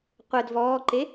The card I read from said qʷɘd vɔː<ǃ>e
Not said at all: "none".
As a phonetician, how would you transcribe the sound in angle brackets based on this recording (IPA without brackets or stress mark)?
ǃ